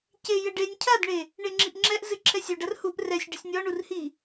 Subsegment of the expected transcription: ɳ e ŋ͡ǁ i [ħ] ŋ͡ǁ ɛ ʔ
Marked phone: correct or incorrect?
incorrect